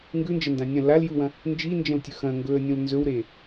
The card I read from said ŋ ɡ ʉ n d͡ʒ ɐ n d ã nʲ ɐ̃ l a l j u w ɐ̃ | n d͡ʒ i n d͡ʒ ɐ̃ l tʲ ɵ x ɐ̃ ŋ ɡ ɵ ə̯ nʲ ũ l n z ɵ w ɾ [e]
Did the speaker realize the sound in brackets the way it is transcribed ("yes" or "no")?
yes